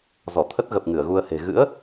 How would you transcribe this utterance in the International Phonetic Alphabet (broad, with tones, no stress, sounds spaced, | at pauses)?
z ɔ˧˩ t̪ʰ ə˦˥ t̚ ɣ ə˨˩ p̚ ŋ ɨ˧˩ ə̯ ɣ u˧ ə̯ h e̤˨˩ ɣ ɨ̰˧˥ ə̯